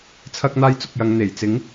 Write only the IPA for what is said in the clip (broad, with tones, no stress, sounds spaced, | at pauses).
t͡sʰ ɐ˥ k̚ n̪ aː˥ j t͡s ʊ˧ k̚ j ɐ˨˧ ŋ n̪ e˨˩ j t͡s ɪ˨˥ ŋ